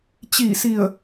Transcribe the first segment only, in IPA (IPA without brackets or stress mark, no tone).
t͡ɕ